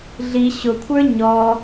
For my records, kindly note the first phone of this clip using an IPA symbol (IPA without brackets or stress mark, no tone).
ɮ